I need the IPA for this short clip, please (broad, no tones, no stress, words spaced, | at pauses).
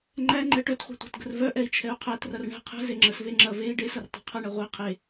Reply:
ŋ͡ǃæ ŋ͡ǃɛʈœtχʷe̤ tʷɛ̤tɡə̤rvœʔɛi̯ t͡ʃʰɛu̯qʰætrɐr ɳɛ̤ qʰɛ̤ zeŋ͡ǁəsve ŋ͡ǁɐ vei̯ ɖesɐr tˤe̤qʰɐɳɛ ʁʷe qʰe